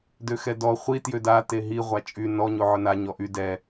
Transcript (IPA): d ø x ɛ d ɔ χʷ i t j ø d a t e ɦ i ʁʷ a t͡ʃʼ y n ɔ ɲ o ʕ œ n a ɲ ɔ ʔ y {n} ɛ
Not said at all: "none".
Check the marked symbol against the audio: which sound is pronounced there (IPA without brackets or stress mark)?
d